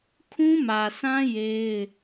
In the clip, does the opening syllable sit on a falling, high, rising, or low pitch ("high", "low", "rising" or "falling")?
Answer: high